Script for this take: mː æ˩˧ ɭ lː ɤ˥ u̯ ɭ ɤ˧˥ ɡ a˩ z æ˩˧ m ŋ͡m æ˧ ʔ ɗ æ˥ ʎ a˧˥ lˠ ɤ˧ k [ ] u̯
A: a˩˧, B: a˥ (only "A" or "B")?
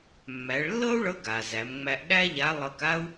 B